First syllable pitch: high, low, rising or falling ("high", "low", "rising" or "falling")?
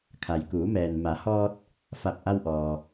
low